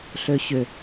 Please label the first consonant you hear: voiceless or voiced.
voiceless